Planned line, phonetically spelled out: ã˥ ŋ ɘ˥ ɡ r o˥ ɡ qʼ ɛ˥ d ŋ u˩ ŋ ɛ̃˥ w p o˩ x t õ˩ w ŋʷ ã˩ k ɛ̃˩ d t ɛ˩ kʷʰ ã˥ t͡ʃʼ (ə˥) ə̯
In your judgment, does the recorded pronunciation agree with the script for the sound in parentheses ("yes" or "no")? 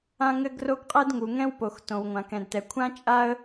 no